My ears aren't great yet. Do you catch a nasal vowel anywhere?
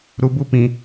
yes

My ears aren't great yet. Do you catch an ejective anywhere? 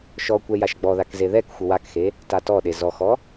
no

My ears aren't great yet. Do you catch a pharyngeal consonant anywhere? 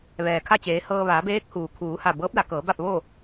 no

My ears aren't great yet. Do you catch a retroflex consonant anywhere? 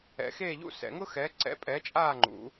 no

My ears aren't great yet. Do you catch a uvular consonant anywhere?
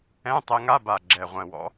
yes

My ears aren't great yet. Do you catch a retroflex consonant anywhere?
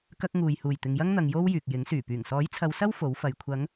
no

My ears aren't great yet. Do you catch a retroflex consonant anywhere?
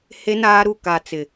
no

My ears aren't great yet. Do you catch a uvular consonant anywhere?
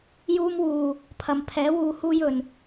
no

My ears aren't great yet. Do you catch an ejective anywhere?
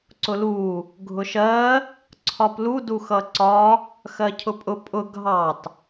yes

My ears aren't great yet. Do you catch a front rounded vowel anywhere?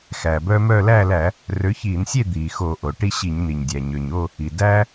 yes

